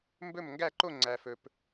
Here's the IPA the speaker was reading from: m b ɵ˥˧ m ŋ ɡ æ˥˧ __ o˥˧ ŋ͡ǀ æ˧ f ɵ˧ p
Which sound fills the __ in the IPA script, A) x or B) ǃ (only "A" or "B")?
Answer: B